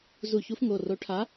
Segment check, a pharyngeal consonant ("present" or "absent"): absent